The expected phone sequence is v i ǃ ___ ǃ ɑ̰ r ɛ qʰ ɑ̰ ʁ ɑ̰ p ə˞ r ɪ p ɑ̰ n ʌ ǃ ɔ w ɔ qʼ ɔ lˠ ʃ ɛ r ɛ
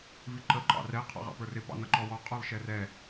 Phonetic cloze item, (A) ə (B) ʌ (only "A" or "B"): A